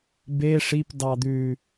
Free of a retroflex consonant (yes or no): no